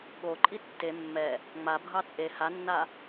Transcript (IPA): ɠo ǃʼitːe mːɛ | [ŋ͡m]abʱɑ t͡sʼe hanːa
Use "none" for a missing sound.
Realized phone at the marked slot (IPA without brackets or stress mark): ŋ͡m